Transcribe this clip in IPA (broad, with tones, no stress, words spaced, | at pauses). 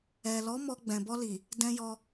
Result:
ɛ˨lɔ˨˦ mɔ˧ ɡ͡bɛ̃˨bɔ˧li˨ | dɛ̃˧jɔ˧